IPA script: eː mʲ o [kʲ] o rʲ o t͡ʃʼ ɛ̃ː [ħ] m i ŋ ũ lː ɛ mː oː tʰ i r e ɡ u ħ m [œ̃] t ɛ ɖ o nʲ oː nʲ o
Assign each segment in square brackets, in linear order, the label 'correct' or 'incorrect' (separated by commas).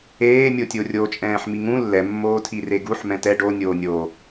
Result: incorrect, correct, incorrect